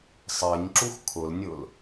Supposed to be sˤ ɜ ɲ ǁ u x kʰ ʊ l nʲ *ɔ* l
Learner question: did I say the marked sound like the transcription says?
no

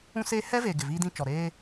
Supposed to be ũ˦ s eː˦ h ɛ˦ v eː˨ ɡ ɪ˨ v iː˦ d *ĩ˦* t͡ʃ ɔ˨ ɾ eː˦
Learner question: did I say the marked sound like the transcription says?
yes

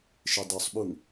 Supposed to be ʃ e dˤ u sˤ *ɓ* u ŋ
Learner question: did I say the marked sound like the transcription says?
yes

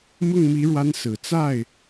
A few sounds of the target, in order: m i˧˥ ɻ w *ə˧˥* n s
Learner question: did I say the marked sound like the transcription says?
no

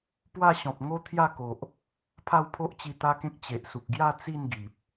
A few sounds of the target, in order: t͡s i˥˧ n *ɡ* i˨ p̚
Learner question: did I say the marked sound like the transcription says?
yes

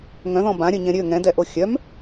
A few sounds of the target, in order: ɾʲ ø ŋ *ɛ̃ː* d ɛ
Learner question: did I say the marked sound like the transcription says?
no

